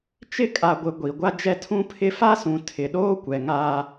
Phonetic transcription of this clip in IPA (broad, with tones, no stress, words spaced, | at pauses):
t͡ʃɪ˦kʼa˨ɡʷɪ˨ ɡʷi˨ ɡʷa˦d͡ʒɛ˦tʰũ˦ pʰɪ˦ fa˦sũ˨ tʰɪ˨ɗoː˦ kʷɛ˨ŋa˦